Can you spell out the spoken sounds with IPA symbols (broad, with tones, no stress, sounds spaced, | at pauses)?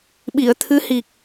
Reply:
ɓ i˨˩˨ ə̯ t̪ʰ ɨ˧˥ h i˨˩ k̚